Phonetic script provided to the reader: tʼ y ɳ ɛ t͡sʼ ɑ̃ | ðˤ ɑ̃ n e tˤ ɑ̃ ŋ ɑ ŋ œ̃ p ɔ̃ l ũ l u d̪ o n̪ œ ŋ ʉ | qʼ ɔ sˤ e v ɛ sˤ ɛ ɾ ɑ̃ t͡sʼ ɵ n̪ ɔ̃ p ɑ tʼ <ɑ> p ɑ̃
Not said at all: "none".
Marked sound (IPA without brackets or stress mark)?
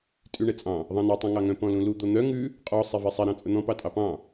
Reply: ɑ